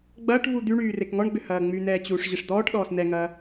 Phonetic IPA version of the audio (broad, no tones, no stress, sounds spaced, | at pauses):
ɡ͡b ɐː ʈ v u d̪ y ɳ yː r e k ŋ ɔ ɳ ɡ͡b ʏ h ɐː ŋ͡m y n̪ ɛː t͡ɕ uː ʂ ʑ ɪ ʂ d̪ ɔː ʈ ɗ ɔː s n ɛ ŋ ɐː